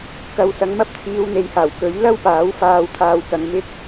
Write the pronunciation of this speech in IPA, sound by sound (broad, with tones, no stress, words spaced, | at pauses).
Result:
kɐ˨wsɐ˨˧ŋmɐ˥p̚ t͡sʰiː˨˧wn̪e˨jhaː˨˩w kɵ˨˥ɥ lɐ˥wpaː˨˥w faː˧wt̪ʰaː˧wkɐ˨˧ŋ mɪ˥k̚